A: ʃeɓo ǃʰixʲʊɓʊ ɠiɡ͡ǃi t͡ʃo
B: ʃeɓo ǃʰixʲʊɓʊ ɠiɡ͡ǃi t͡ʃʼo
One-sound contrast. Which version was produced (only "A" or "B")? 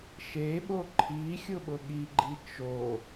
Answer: A